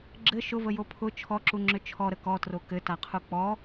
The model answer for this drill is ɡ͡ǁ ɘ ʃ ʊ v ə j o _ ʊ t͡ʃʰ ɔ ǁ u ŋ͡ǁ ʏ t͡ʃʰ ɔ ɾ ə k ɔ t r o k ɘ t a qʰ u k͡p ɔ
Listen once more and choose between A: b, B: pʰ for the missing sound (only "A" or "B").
B